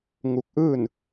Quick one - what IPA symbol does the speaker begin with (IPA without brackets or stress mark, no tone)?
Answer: ŋ